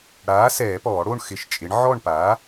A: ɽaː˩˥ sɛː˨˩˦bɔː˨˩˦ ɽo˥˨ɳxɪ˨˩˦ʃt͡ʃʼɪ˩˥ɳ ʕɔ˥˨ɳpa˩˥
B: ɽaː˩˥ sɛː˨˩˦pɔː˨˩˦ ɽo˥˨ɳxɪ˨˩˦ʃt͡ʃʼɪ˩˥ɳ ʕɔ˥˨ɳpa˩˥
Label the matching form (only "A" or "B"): B